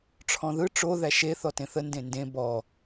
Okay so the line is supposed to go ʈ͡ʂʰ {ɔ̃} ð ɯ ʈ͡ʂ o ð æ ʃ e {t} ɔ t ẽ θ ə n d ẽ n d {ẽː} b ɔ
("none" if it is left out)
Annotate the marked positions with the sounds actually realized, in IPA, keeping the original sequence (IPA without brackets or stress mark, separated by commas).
ɔ̃, θ, ẽ